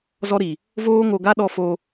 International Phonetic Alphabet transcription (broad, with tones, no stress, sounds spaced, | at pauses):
z ɔ˦ ɾ i˨ | v oː˦ ŋ o˧ ɡ a˦ ɗ ɔ˧ f o˧